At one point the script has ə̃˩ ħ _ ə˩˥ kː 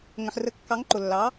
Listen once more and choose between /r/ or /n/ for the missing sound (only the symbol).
r